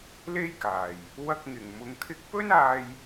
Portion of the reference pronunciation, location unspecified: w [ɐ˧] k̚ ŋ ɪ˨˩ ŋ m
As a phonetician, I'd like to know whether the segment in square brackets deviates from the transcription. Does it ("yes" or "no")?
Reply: no